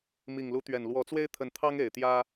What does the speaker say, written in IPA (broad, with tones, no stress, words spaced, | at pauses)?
mi˨˩ŋlu˨˦t̪ɥɛ˨˩n lwɔ˨˦t͡swe˦ɪ̯t̪ʰə˨˦nt̪ʰɑ˦ŋ e˨˩ɪ̯t̪jä˦